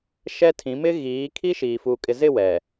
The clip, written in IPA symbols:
ʃ ɛ˦ tʰ ĩ˨˦ m ɪ˦ ɣ iː˨˦ kʰ i˦ ʃ iː˨ f uː˨ kʼ ɪ˨ z ɪ˦˨ w ɛ˨

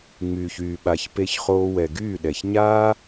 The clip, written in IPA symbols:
ŋ͡m yː˨ ç yː˨ ɓ a˨ ç p e˧ ç χ oː˧ w ɛ˨ ɡ yː˦˨ ɗ ɛ˨ ç ɲ aː˦

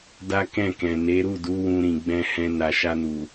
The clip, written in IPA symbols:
d a˦ k ɛ̃˦˨ k ɛ̃˨ n e˨˦ ɾ u˦˨ d u˨˦ w ũ˧ ɾ ĩ˨ ɡ͡b ɛ̃˧ h ɛ̃˧ n a˨ ʃ a˧ n u˨

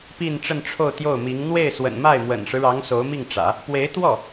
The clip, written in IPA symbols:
p i˥˧ n ʈ͡ʂ ə˥˧ n ʈ͡ʂʰ o˥˧ ʊ̯ t̪ j o˥˩ ʊ̯ m i˧˥ ŋ n̪ w e˥˩ ɪ̯ s w ə̰˨˩ n m a˥˩ ɪ̯ m w ə̰˨˩ n ʂ ɻ̩˦ ɻ ɑ˧˥ ŋ s o˧˥ ʊ̯ m i˥˩ ŋ ʈ͡ʂ ä̰˨˩˦ | p w e˧˥ ɪ̯ t̪ w ɔ˥˩

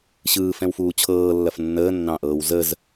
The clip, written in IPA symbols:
ɕ ɯː f ɛ̃ w f uː t͡ɕʰ ɤː lː ɐ f nː əː nː ɑ̃ ʔ ɤː w z ə z

